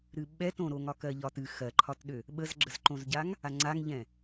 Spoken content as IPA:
ɾ ɨ ɓ ɛ t õ ɾ o ŋ ɒ k ɜ ʎ ɒ t ɨ x ɜ ǃʰ ɒ t ɗ ø | ɓ ə z ɡ͡ǁ ə z ǃ õ z ɟ a ŋ | a ŋ͡ǀ a ŋ ʎ ɛ̃

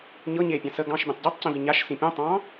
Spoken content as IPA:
ɲ ɤ ɲ e pʲ ɑ̃ s ə ɡ ɑ̃ ʃ bʲ ɛ̃ tˤ ɟ ɑ tˤ c ĩ v i ɲ a ʃ s ĩ pʲ õ tˤ ɑ̃

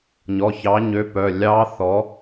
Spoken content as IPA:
ɲ ɔ˩˧˩ ç ɑ˨˥ ɲ ø˨˥ p œ˩˧˩ lʲ ɑ˦˥ θ ɔ˨˥

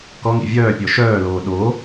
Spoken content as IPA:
k ɔ ŋ ḭ vʲ œː pʲ ɔ ʃ œː l oː ɗ o

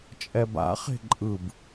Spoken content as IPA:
t͡ʃʼ ɛ b a̰ χ e̤ ǃʼ ɯ b

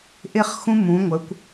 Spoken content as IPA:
ʔ ɪ˥˧ χ x ũ˥ m ũ˩˧ ŋʷ ə˩˧ kʷ

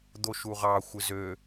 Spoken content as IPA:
d̪ o ʃ u ʁ ɑ xʷ ɯ z ø

